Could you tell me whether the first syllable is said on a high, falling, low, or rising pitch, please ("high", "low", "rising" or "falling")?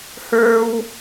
high